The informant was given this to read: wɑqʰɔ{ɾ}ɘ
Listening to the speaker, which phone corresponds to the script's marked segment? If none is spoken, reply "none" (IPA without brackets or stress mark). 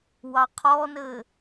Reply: n